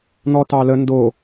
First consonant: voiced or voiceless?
voiced